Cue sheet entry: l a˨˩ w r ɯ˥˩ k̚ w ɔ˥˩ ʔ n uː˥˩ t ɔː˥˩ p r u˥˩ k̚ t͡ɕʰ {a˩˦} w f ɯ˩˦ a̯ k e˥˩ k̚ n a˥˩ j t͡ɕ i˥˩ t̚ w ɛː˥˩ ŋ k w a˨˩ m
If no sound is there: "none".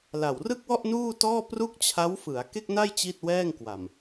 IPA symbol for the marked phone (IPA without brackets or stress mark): a˦˥